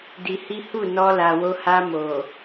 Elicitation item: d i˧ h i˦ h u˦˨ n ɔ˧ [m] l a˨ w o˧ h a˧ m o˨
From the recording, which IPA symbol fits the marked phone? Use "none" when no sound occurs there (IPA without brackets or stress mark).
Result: none